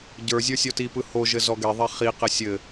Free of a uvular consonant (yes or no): no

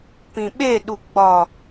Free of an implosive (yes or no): no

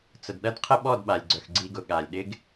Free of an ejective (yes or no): yes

